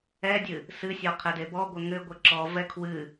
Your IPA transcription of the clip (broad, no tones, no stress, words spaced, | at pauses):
ɛdʲɨ | sɨsʲɔ qʰɛdebɔɡʷɘ ŋɘ ɡʷɘǁɔvɛ kʰwɨ